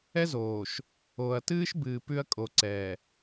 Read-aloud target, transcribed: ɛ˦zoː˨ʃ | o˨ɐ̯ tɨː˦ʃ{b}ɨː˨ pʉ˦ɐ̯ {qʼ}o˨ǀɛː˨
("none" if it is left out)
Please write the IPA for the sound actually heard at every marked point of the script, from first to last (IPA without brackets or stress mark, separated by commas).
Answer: b, kʼ